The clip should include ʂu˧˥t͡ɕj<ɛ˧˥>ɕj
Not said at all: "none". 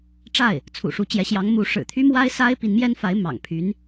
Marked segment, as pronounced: ɛ˧˥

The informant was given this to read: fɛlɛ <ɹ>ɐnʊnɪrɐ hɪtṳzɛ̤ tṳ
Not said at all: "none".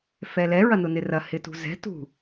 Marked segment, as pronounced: ɹ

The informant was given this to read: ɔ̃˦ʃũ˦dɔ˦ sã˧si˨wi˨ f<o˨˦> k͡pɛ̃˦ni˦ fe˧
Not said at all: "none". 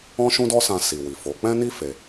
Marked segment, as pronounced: o˨˦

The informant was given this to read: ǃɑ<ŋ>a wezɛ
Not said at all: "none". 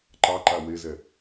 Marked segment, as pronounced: ǃ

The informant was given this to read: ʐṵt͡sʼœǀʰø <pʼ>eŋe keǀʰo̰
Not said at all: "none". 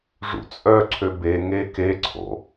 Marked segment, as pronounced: b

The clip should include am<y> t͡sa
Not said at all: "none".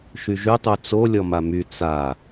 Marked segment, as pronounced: y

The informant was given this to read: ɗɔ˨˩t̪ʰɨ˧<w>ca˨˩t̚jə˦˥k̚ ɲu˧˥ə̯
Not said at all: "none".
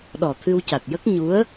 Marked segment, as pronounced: w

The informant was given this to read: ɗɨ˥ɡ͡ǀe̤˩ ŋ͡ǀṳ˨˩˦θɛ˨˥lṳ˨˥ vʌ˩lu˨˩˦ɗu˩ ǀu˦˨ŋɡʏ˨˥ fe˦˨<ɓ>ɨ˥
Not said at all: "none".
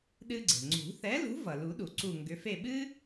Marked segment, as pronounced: ɓ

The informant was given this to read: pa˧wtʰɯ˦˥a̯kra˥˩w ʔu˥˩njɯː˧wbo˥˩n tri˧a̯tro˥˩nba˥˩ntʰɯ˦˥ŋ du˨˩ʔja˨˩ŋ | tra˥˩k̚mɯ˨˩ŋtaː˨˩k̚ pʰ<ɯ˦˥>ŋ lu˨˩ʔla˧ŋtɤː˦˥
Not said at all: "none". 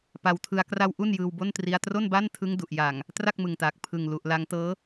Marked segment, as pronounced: ɯ˨˩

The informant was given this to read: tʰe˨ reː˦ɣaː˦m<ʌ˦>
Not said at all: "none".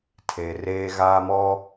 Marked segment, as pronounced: ɔ˦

